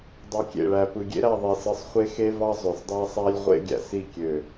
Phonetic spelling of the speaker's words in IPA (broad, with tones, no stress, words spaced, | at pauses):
dˤɯ˨kʲḛ˨ɭæ˨ pɯ˨ɡʲḛ˦ɾæ˦˨ ðˤe˨sɯ˨sˤ χʷe˦xe˦vɑ˦ zˤø˨sdˤæ˦sˤæ˦lʲʁʷḛ˦ ɡʲæ̰˨si˦˨ kʲø˨